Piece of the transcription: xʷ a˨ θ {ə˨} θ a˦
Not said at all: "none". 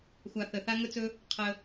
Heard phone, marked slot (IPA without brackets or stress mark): ə˨